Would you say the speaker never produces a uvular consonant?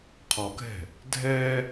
no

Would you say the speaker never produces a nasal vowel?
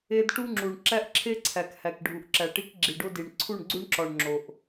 yes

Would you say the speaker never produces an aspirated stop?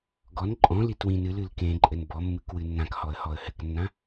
yes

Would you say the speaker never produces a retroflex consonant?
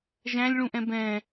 no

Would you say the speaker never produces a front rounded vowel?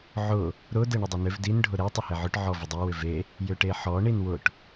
no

